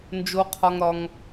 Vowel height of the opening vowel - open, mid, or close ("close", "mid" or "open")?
mid